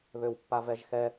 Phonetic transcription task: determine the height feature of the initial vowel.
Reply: mid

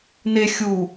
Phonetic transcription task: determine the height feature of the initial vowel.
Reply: mid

